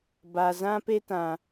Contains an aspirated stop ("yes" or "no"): no